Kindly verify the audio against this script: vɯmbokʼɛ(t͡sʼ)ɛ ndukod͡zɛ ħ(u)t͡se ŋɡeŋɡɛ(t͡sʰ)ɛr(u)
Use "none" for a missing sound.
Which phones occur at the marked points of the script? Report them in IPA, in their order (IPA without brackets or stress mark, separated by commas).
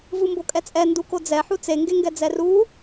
t͡sʼ, u, d͡z, u